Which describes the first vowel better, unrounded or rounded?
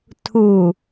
rounded